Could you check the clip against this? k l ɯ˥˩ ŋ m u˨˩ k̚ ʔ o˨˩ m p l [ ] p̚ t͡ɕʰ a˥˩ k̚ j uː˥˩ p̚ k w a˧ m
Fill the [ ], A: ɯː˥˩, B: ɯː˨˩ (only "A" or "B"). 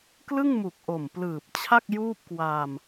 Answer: B